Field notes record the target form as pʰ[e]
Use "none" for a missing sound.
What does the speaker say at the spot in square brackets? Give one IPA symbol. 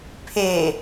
e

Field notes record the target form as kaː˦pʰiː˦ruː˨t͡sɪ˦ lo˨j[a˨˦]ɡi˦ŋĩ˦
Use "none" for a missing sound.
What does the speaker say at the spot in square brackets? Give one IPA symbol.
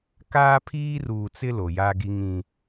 a˦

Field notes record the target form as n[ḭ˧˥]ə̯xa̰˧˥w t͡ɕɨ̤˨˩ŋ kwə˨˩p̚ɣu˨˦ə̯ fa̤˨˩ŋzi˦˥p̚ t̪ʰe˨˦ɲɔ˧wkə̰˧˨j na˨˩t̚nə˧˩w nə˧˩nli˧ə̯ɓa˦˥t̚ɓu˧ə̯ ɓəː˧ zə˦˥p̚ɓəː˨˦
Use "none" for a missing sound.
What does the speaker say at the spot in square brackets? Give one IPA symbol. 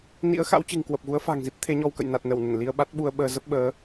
ḭ˧˥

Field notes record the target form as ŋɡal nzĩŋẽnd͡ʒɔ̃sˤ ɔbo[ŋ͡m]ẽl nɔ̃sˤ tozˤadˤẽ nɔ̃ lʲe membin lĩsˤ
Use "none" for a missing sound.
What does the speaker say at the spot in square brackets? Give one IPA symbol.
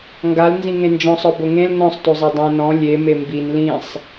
ŋ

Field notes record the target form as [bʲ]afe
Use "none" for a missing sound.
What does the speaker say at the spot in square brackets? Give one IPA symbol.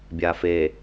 bʲ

